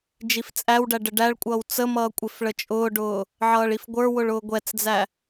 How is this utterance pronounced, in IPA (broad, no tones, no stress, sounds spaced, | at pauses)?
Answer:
d͡ʒ i f t͡sʼ æ w ɖ æ ɖ ə ɖ æ ɭ kʷʼ ʌː w t͡s ə m ʌː kʷʼ ɪ f ɭ ə t͡ʃʼ ʊː ɖ ʊː | ʕ ʌː ɭ i f ɡʷ ə˞ w ʊ ɭ ʊː ɡʷ ɛ t͡s d͡z æ